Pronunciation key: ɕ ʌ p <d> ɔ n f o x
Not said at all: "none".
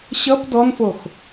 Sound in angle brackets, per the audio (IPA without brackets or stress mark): d